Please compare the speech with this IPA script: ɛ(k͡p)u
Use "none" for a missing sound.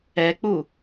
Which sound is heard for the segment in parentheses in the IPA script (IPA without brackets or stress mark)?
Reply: k͡p